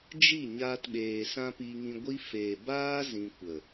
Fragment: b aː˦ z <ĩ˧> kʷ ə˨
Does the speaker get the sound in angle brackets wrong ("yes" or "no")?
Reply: no